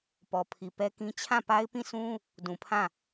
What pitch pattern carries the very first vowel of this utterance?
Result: low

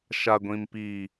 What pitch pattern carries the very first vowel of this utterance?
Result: low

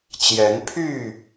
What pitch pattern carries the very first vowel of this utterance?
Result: rising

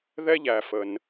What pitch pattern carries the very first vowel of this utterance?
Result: high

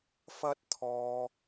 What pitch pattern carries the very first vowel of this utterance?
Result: high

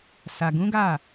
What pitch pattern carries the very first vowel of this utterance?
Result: low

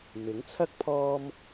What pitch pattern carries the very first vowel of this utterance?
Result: rising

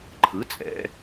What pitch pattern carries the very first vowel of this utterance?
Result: rising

